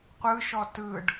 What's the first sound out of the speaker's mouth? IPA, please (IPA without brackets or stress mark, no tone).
qʷ